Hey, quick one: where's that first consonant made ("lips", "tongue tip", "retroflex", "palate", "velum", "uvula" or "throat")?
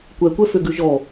velum